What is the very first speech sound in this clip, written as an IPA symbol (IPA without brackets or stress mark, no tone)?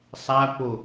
sˤ